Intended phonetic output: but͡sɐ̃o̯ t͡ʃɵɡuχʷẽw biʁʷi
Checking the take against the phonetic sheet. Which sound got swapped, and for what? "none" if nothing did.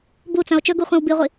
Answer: none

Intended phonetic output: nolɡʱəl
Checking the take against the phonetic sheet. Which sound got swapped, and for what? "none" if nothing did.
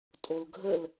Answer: n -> tʼ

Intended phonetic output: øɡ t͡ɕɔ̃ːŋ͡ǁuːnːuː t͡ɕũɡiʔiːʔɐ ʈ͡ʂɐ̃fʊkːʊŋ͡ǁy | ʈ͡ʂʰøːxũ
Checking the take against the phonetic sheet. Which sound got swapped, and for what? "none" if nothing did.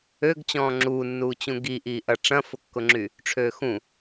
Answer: none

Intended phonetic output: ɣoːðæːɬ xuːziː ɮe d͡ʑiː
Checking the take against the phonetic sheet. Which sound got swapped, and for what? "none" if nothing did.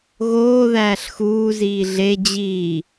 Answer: none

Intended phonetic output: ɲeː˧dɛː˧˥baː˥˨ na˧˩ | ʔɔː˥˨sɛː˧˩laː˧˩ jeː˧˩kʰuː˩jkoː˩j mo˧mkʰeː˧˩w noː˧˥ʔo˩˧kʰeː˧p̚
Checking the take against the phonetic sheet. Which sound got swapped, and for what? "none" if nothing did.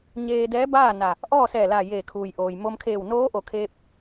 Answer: k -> ʔ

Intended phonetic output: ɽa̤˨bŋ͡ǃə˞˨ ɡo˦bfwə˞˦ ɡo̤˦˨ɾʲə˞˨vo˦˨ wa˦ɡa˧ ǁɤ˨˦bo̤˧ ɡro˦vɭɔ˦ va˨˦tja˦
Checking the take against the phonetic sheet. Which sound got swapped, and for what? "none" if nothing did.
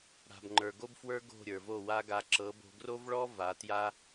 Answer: none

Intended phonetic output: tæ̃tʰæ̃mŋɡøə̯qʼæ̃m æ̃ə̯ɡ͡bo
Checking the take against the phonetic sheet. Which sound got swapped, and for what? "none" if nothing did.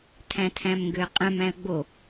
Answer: t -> tʰ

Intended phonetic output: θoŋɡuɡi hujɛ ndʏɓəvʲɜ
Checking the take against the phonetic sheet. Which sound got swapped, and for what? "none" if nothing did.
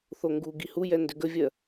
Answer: ɓ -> ɡ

